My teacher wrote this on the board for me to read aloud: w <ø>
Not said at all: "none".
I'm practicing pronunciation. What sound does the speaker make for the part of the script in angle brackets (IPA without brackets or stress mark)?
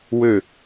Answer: ø